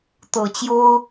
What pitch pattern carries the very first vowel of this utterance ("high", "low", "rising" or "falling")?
low